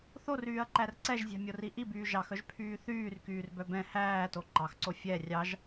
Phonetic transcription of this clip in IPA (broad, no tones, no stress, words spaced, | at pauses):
θoryːɐ̯ǃær ǀɛʒzʲæ̤mʲori ʔibyː ʒɑxœʒpʰyː θyːrkyːrbœ bɛ̃ hæːto ǃɑxǀo fʲɛ rʲɑʒ